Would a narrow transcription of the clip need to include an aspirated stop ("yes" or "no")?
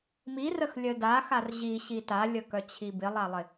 yes